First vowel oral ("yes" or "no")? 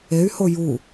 yes